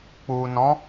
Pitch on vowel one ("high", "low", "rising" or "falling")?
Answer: low